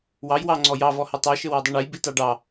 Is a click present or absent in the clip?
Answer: present